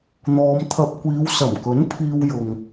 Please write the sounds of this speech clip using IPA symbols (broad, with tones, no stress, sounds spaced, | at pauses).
n̪ ɔː˨˧ m t̪ʰ ɐ˧ p̚ kʷ iː˨˧ w s ɐ˨˩ m k ɵ˨˥ n pʰ iː˧ w j ʊ˨ ŋ